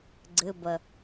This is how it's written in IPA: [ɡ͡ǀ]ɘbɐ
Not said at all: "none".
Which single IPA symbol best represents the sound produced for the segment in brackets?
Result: ɡ͡ǀ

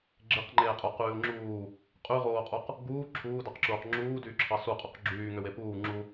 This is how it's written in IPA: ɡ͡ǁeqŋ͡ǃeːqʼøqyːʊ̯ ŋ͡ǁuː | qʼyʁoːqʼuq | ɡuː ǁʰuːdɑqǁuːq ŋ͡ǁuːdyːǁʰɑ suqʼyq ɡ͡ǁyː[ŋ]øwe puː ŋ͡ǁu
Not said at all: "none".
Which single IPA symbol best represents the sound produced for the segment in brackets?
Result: ŋ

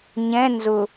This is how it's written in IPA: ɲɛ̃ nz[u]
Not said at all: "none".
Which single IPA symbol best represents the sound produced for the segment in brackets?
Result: ʊ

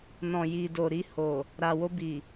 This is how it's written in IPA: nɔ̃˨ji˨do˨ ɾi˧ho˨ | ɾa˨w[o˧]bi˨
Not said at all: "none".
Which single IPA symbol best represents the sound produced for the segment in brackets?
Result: o˧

